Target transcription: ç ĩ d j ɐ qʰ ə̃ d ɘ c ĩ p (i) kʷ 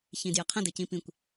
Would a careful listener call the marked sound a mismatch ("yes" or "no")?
yes